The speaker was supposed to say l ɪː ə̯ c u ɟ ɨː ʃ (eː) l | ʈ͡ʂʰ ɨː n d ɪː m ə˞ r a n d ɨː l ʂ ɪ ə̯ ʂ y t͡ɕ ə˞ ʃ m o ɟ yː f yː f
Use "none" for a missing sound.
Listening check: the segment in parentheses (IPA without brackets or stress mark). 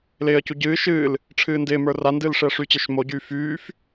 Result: ɨː